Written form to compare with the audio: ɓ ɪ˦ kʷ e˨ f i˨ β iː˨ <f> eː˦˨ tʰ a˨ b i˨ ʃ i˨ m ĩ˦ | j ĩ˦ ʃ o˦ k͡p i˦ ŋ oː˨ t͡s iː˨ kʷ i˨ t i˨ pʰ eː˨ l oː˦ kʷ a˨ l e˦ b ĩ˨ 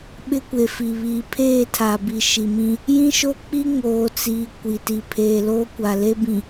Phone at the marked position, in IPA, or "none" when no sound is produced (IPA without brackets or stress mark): pʰ